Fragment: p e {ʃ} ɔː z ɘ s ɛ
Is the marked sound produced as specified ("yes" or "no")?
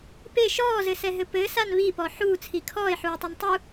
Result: yes